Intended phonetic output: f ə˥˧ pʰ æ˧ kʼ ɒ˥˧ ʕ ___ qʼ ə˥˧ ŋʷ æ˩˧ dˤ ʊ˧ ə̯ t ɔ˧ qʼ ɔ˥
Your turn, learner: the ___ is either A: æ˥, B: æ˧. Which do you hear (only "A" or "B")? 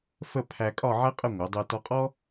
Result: A